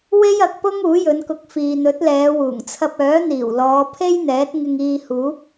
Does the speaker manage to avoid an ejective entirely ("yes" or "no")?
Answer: yes